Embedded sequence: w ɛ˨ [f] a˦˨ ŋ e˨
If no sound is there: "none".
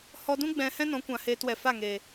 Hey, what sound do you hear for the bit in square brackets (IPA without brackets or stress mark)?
f